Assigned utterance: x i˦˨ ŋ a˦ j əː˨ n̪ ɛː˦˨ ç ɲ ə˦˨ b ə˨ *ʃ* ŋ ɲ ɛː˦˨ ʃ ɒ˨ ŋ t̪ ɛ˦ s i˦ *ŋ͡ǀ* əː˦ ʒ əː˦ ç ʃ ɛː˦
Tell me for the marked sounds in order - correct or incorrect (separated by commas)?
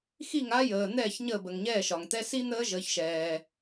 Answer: incorrect, incorrect